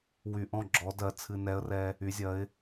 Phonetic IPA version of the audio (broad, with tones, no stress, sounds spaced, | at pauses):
w y˨˩ ʔ ɔ̃˥˩ ɡ͡ǁ ɔ˧˥ d ɜ˧˥ t͡sʰ ɨ˧ n ɛ˧˥ ə̯ r ɛ˧ | y˩˧ zʲ ɜ˩˧ ɪ̯